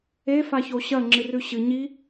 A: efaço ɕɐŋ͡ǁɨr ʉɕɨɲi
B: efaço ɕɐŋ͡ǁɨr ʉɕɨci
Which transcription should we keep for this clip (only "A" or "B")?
A